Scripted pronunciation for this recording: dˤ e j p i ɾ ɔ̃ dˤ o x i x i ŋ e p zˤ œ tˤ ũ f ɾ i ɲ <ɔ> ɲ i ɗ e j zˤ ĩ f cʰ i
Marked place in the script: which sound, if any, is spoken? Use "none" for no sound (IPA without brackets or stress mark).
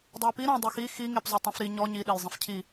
ɔ